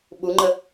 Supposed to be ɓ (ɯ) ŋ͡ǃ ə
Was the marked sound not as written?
yes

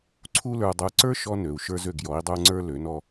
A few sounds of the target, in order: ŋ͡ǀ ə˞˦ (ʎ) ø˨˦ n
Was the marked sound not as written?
yes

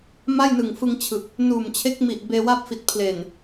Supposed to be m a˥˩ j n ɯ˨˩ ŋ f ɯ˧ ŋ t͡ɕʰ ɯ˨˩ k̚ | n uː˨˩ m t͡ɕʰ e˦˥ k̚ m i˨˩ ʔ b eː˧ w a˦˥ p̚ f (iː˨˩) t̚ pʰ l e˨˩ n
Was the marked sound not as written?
yes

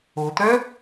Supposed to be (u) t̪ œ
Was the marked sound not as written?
yes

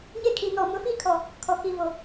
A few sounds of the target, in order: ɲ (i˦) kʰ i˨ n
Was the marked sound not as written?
yes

